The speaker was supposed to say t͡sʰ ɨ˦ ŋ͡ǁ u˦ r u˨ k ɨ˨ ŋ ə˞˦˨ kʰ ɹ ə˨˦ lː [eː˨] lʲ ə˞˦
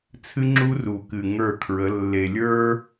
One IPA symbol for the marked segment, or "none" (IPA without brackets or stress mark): e˨